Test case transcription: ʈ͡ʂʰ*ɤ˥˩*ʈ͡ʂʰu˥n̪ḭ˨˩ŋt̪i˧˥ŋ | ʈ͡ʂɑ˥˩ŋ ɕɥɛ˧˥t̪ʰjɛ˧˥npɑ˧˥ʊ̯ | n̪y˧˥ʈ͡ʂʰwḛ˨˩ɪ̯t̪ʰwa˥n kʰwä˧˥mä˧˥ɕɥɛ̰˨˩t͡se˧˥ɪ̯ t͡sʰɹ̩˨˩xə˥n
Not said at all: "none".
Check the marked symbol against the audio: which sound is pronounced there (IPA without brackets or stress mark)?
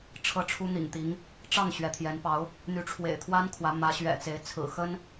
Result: ɤ˥˩